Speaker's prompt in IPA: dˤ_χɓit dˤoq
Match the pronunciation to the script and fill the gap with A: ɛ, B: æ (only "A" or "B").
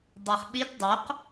B